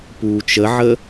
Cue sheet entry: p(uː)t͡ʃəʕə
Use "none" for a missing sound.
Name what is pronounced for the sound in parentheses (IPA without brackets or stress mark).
uː